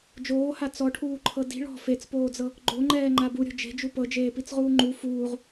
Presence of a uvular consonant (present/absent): present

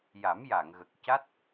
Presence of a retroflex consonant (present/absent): absent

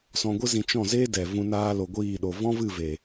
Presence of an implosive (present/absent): present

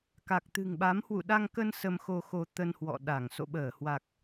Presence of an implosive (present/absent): present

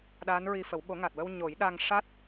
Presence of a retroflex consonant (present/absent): present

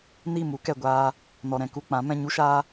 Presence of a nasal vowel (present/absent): present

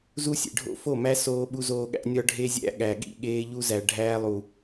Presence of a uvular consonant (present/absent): absent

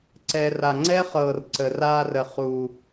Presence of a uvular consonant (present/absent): present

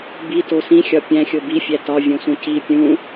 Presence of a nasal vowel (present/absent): present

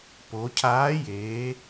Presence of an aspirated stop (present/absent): present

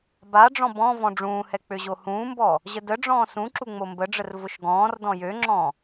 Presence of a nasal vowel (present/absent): present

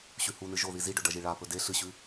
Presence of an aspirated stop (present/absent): absent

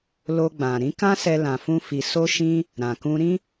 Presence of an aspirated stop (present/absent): absent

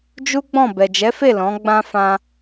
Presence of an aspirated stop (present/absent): absent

